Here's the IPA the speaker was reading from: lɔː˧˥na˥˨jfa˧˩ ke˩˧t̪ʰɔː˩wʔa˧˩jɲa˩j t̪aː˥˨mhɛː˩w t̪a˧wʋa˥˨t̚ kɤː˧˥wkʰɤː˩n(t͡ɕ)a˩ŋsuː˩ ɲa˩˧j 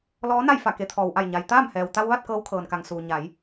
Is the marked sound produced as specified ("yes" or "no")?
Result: no